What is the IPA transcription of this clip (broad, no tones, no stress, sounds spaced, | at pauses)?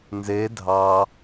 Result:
n z e dʱ ɑ